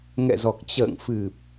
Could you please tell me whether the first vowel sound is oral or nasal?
oral